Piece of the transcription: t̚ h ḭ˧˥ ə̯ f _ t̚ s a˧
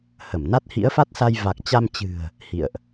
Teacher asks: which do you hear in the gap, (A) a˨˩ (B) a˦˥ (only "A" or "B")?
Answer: B